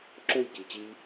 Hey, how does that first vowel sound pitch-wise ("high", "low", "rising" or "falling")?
falling